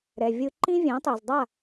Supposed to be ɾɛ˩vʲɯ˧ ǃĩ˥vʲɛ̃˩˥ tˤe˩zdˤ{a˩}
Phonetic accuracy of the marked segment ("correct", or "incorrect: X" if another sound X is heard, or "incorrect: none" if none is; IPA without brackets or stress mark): incorrect: a˥˩